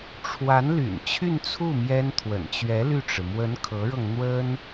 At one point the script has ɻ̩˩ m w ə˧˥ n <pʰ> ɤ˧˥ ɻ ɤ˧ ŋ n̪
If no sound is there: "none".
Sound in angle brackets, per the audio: kʰ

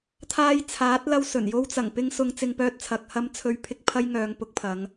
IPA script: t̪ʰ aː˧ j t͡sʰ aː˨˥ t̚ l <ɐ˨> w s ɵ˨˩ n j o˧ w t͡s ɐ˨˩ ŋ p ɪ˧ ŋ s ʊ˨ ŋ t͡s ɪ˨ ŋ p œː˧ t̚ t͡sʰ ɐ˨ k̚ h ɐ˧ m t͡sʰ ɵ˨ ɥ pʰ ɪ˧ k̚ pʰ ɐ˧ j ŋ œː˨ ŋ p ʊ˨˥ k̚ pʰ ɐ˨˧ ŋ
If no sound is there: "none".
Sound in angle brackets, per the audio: ɐ˧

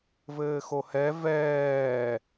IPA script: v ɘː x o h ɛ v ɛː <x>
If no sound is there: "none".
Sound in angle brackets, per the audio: none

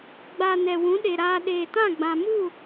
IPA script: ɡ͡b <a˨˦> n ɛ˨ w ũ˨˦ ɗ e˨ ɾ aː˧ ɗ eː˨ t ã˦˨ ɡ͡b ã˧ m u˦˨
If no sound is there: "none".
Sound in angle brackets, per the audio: a˨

